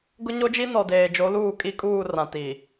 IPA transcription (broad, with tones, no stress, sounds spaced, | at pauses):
ɡ ʊ˦ ɲ o˦ d͡ʒ i˦ n ɔ˨ d eː˨ d͡ʒ o˨˦ l uː˦˨ kʼ i˦ kʼ uː˦˨ r ã˨ t iː˨